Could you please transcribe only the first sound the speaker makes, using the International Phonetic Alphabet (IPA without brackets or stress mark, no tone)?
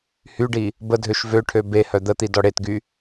h